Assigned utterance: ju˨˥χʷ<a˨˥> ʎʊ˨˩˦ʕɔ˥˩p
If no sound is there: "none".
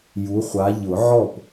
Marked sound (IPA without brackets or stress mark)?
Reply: a˨˥